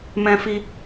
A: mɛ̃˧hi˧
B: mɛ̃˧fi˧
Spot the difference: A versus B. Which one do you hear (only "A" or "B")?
B